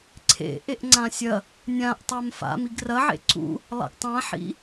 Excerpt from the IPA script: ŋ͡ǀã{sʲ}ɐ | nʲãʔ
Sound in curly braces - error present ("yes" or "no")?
no